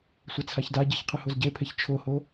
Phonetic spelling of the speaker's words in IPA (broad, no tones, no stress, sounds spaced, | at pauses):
sʷ ɛ t͡sʰ a ç d a ɟ e ç qʰ ɨ h o z ɟ e pʰ e ç t͡ʃʰ o h o